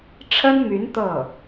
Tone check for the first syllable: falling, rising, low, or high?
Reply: high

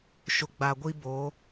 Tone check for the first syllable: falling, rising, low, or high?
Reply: low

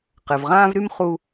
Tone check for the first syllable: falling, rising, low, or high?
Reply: low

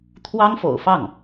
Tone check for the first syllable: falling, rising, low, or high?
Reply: high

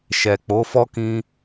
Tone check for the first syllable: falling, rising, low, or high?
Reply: low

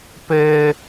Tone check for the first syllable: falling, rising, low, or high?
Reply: high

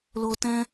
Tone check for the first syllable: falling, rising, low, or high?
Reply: low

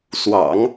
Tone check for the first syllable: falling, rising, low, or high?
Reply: low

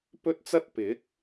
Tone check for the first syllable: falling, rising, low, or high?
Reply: high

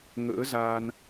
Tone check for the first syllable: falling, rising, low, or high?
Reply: rising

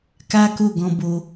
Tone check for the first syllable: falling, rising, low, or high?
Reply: high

